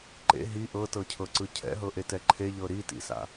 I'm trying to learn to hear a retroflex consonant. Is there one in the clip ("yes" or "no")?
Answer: no